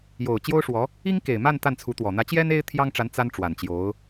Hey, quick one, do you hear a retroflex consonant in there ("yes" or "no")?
yes